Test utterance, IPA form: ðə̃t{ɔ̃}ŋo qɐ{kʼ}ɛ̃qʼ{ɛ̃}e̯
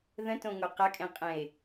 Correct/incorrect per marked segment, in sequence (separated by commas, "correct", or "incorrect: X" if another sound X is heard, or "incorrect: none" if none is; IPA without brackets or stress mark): incorrect: õ, correct, correct